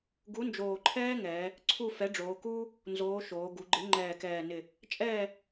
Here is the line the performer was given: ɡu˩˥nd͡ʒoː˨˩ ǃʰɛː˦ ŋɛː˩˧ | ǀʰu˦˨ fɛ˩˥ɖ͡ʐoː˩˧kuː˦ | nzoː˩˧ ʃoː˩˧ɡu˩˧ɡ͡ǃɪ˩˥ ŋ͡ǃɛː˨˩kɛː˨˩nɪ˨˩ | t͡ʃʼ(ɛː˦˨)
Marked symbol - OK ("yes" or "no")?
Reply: yes